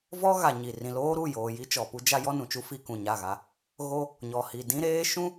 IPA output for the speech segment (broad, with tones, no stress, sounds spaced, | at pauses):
v ɔ˦ ɣ a˨ ɲ i˨ r ĩ˨ l oː˦ ɾ u˦˨ j oː˨ j i˦ t͡ʃ ɔ˨ p u˦ d͡ʒ a˦ j ɔ˦ n ũ˨ t͡ʃ u˦ f i˦ k ũ˨ ɲ a˦˨ ɣ a˦ | ɣ o˦ | ɲ ɔ˨ h i˨ d ĩ˦ ɾ eː˦ ʃ ũ˦